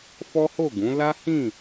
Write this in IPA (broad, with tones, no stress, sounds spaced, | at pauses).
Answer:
f ɔ˦ h o˦˨ ɡ ũ˨˦ l a˦ h ĩ˦˨